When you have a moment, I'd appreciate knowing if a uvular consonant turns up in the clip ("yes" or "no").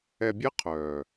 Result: yes